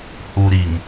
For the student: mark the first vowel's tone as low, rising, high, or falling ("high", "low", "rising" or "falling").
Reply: low